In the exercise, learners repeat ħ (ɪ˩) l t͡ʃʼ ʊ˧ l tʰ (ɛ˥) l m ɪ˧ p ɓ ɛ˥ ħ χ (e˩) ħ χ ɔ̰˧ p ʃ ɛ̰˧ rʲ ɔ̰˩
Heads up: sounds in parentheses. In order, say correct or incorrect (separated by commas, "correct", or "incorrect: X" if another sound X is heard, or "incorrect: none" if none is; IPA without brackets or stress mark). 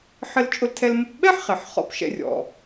incorrect: ɪ˧, incorrect: ɛ˧, correct